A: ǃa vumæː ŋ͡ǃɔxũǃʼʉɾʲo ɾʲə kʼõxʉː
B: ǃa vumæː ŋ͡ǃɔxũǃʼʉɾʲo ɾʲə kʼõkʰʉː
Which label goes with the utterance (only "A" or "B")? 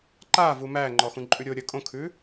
B